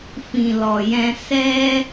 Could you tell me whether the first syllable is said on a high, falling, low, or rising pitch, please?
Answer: low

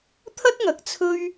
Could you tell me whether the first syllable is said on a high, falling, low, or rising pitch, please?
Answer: high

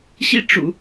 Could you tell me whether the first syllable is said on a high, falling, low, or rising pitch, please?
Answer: falling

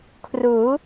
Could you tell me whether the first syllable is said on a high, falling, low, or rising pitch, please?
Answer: rising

